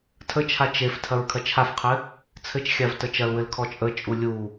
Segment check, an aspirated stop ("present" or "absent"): present